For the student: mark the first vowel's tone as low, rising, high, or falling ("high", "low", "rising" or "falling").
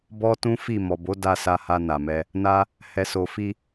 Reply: high